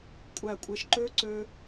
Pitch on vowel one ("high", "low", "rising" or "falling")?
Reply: low